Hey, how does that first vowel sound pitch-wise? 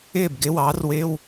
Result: falling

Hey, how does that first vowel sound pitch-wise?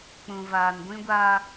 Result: low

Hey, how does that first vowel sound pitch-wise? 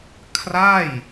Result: falling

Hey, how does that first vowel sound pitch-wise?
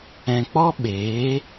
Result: low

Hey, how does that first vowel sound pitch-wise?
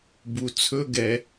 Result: low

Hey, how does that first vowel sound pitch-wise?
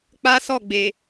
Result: high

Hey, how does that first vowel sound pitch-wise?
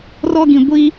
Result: high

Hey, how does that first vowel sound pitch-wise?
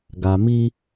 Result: low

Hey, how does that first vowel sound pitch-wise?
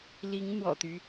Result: rising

